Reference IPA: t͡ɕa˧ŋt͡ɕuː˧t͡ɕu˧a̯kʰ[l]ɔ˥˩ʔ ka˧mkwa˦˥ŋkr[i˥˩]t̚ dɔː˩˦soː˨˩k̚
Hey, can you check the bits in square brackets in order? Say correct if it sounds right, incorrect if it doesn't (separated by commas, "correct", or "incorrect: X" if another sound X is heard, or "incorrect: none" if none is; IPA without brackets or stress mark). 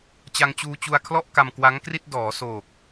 correct, correct